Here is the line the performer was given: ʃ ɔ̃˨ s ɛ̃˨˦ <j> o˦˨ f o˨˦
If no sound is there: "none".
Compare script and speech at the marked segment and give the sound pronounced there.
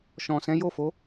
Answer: j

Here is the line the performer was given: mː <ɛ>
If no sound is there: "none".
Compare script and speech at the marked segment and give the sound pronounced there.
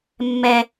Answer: ɛ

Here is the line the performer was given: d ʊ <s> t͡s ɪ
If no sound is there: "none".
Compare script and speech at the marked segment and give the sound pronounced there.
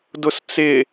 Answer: s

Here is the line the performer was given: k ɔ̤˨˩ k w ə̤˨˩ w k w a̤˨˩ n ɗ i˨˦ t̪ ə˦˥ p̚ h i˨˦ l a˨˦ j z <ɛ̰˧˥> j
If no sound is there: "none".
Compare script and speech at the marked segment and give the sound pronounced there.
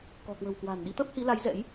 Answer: ɛ̰˧˥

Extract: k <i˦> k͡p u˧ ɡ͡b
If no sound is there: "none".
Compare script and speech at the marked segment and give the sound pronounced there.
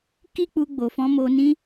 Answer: i˦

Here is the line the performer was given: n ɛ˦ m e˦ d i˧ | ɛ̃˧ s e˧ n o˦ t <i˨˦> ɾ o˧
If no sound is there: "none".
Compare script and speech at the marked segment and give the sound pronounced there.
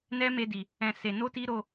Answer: i˦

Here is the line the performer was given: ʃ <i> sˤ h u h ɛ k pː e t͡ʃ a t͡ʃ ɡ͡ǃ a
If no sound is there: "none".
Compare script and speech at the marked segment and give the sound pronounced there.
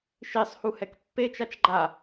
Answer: i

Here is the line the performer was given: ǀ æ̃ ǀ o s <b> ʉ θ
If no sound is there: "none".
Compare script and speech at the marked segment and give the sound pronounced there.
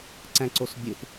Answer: bʲ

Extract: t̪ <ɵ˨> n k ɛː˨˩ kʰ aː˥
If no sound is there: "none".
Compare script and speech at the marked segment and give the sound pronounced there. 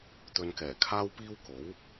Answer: ɵ˧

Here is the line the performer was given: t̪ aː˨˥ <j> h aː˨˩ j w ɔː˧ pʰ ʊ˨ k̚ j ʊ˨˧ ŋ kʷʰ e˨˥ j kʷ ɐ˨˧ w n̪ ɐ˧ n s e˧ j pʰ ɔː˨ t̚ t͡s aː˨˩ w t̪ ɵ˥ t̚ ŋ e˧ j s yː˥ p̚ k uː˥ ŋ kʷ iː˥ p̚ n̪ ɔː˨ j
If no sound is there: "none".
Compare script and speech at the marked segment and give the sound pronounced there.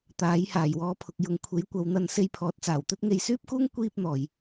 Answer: j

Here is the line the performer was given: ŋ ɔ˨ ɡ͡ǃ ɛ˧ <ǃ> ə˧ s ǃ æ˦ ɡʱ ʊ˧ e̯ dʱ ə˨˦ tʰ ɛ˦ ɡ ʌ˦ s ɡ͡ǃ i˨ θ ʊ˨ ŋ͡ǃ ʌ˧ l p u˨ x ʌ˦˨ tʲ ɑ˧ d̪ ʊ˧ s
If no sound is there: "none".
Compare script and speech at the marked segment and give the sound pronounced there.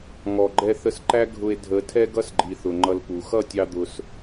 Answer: θ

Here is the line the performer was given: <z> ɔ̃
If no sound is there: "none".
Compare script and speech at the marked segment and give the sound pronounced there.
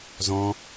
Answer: z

